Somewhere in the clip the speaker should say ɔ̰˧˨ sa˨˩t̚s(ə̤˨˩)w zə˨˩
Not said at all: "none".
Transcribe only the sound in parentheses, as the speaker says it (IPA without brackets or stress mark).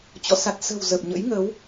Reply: ə̤˨˩